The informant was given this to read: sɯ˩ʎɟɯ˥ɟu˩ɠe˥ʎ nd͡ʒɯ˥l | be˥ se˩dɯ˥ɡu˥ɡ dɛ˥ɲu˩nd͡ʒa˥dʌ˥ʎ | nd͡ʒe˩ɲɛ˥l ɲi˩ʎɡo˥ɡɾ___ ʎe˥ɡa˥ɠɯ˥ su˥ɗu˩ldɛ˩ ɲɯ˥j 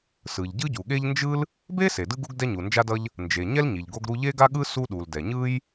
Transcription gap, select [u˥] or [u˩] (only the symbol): u˥